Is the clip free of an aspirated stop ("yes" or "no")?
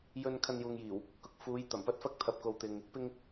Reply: no